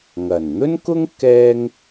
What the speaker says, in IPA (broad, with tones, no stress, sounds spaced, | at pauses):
ŋ ɐ˨˩ n n̪ ɵ˥ n k ʊ˥ ŋ k ɛː˥ ŋ